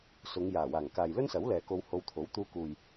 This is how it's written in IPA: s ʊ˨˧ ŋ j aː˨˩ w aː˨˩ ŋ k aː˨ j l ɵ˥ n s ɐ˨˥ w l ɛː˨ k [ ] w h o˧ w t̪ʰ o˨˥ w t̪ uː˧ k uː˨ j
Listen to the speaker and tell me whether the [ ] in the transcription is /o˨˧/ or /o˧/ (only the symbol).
o˧